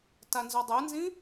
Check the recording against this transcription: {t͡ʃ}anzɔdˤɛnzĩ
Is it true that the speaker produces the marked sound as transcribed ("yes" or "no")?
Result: no